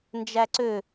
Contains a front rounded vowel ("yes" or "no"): yes